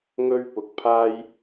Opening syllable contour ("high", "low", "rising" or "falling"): high